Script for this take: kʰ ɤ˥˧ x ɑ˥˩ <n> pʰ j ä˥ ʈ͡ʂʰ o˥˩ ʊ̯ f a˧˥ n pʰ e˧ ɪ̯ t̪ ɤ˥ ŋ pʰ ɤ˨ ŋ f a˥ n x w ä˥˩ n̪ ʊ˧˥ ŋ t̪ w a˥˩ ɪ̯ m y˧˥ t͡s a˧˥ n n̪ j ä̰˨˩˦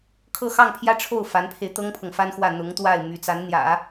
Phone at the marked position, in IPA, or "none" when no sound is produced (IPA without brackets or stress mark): ŋ